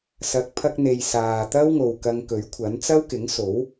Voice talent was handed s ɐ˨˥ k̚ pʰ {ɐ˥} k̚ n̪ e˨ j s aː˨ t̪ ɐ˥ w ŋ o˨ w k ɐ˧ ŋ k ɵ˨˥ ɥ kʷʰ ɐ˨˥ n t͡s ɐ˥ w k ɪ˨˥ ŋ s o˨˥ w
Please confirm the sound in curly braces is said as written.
no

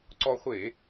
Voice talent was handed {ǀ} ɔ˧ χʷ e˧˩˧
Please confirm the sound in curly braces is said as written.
yes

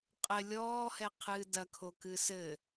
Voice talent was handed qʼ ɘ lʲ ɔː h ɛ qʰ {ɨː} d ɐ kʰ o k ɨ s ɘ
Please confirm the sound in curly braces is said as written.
yes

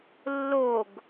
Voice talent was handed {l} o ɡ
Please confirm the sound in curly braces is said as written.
no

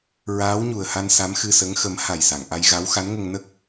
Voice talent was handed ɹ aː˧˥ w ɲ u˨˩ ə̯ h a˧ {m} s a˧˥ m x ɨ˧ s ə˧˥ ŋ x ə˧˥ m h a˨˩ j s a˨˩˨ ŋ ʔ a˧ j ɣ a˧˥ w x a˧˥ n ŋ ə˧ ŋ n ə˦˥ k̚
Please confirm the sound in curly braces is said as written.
no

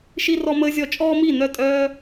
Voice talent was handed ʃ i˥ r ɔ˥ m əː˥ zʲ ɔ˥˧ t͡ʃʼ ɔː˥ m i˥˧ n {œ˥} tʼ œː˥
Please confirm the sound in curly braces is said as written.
no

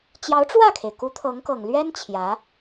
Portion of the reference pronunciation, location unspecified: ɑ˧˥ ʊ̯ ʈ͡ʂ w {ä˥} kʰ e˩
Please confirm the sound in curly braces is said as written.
no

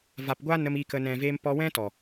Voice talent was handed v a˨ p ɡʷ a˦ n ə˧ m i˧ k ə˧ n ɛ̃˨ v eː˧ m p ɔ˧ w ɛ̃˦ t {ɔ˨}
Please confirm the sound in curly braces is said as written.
yes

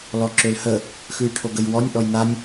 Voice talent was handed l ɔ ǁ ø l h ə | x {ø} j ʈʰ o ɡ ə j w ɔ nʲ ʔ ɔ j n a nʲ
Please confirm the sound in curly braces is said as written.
no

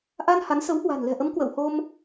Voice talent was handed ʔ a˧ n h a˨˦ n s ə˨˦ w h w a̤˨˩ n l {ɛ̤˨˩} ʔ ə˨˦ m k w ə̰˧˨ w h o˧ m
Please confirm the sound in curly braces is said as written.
yes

